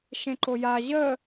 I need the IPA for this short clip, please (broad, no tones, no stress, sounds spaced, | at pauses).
ʃ ẽ ǃ o j a ʑ ə